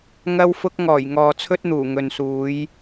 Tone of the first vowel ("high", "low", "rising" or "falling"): high